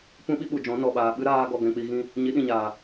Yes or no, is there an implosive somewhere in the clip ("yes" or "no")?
yes